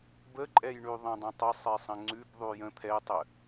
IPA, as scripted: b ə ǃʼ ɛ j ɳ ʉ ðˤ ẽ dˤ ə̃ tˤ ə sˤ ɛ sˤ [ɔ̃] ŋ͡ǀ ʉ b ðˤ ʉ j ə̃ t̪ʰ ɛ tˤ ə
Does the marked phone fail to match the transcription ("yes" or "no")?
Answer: yes